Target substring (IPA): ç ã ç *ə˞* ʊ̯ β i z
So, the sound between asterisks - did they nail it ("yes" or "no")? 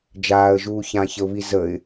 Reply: no